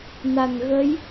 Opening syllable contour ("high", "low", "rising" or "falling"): low